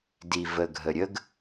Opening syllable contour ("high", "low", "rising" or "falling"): low